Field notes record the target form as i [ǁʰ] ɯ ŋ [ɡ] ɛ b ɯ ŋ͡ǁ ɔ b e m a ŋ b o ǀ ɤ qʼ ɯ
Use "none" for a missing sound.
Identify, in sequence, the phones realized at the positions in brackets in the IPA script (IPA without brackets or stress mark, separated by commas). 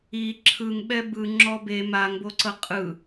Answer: ǁʰ, ɓ